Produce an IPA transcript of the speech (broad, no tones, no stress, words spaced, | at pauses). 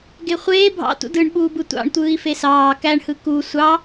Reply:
ɡeχʷeː bʱɑ̰ tṵdɯɳɓuːbɯ tʷɑ̰ɳ tʷɯːi̯fesɑː kæɳhɯ ku sʷɑ